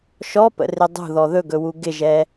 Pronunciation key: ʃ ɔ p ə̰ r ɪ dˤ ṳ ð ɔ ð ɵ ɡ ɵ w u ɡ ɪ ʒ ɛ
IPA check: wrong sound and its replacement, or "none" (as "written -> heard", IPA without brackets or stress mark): none